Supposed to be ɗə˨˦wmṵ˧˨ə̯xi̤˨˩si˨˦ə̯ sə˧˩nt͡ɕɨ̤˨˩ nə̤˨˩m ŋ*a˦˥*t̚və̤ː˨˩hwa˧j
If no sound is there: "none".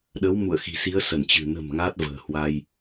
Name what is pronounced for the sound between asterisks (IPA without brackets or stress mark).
a˦˥